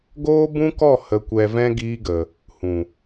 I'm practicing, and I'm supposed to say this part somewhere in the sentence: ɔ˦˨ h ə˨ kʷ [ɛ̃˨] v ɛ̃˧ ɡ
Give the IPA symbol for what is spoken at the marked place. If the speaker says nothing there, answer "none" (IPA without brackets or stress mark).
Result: ɛ˨